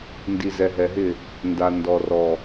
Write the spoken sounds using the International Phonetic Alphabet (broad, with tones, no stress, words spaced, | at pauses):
ndi˨zɛ˨ ɦɛ˨ɦɪ˦˨ | nda˨ ndɔ˨rɔ˨